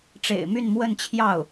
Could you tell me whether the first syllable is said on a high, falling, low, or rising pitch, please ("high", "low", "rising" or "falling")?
low